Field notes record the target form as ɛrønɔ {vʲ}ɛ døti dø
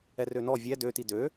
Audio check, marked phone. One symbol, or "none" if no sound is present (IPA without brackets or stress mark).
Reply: vʲ